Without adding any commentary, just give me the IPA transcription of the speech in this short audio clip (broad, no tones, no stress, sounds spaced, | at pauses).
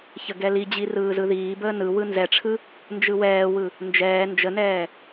ç ə ɡ ɛ l i d͡ʑ i r ɯː z ɯ ð iː b əː n ɯ w ɯ n z ɛ ʈ͡ʂʰ ɯ | n d͡ʒ ɯ w ɛː w ɯ | n d͡ʒ ɛː n d͡ʒ ə n ɛː